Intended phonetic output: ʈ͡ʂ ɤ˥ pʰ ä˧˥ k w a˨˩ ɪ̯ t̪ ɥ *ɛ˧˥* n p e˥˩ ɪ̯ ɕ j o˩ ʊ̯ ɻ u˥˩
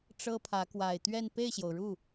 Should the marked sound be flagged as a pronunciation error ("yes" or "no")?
yes